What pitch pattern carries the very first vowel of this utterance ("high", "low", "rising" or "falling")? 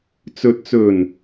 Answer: low